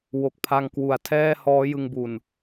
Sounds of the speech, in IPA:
w o˨˩ k̚ pʰ a˧ ŋ k w u˩˦ a̯ tʰ ɛː˥˩ h ɔː˦˥ j ɯ˧ ŋ b u˨˩ n

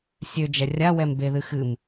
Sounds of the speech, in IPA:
sʲ ø d͡ʒ ɛ rʲ a w ɛ m b e ð ɨ x ɨ m

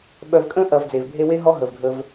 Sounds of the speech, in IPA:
ɓ œ˨ v kʼ ə̃˥ ʔ ɐ˨ v d͡z e˩ v bʱ e˦ w e˥ ɦ ɔ˥ ɦ ə˩ v ɡʱ ə˨ v

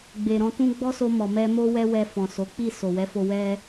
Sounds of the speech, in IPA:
ɡ͡b e˨ ɾ ɔ̃˧ t ũ˦ ɡ͡b ɔ˦ s o˧ m ɔ˨ m ɛ˧ m o˧ w ɛ˧ w ɛ˧ f ɔ̃˨ s o˨˦ k͡p i˦˨ s o˨ w ɛ˨˦ f o˧ w ɛ˧

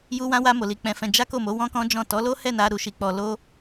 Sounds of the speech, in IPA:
j u˦ w ã˦ w a˦ m o˧ l i˧ k͡p ɛ̃˧ f ɛ̃˧ d͡ʒ a˦ k o˦˨ m o˨˦ w ɔ̃˦ k ɔ̃˦ d͡ʒ ɔ̃˦˨ t ɔ˨˦ l o˦ h ɛ˦˨ n a˧ ɾ u˧ ʃ i˧ k͡p ɔ˧ l o˦

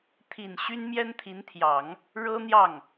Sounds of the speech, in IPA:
t̪ʰ i˨˩ n ɕ y˥ n m j ɛ˥ n t̪ʰ i˧˥ n t̪ʰ j ɑ˨˩˦ ŋ | ɻ ɤ˥ n̪ j ɑ˥˩ ŋ

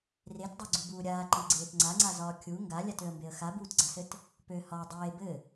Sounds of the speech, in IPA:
r e t dˤ ø ɡ͡ǀ u b uː ɾʲ aː ǃ i ɡ͡ǀ eː t ŋ͡ǀ a ŋ͡ǀ a z ɒː kʲ u ŋ ɡ a lʲ a t ø ə̯ m b e ə̯ x a b uː t ɡ͡ǀ a s ɘ t | p ø h ɒ dˤ eː b ɘ

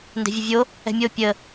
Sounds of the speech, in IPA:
n d ɛ̤ vʲ ə vʲ o | ɛ̤ mʲ o pʲ ə

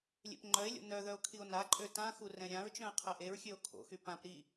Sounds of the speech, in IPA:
lʲ ḛ p ŋ͡ǃ œ e̯ lʲ o̰ n œ ð œ o̯ kʰ i o̯ n a ǃʼ ø t ã x u r ɛ̃ ɾʲ ã ɹ t͡ʃ œ̃ e̯ qʰ ɛ ʔ e ɹ xʲ ø o̯ kʰ o̰ x y p ã p ɾ i

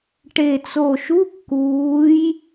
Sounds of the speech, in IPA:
ʈ e˨˩ t͡s o˨˩ ʃ u˧˥˧ kː uː˩˧ j

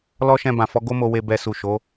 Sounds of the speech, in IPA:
l ɔ˦ ʃ ɛ̃˧ b ã˨ f ɔ˨˦ ɡ o˦ m o˧ w e˧ b ɛ˧ s u˨ ʃ o˨˦

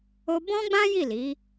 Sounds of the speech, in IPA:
o˧ b ɔ̃˦ ɡ͡b ã˦ j i˦˨ l i˨˦

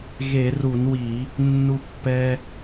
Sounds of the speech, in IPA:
ɣ e˧˩˧ r u˧˩˧ n w i˧˩˧ | nː u˧ pː ɛ˧

